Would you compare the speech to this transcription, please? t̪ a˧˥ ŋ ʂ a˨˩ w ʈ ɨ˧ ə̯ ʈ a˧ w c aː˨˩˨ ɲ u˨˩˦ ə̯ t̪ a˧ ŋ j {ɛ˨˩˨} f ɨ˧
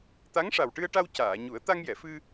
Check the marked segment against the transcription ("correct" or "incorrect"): correct